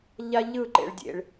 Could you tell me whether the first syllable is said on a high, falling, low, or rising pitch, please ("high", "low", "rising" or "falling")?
high